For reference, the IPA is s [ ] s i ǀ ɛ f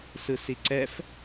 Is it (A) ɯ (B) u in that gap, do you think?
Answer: A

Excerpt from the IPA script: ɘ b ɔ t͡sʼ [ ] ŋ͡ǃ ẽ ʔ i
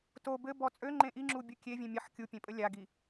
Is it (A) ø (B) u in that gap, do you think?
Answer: A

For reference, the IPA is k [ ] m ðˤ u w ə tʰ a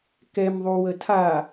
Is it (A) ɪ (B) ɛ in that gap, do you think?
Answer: B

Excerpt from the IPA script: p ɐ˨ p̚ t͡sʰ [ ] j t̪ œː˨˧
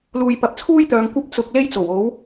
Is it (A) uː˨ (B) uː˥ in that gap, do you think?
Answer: B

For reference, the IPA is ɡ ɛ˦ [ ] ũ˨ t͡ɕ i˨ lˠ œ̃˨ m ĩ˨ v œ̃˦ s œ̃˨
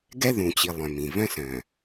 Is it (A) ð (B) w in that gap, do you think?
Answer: A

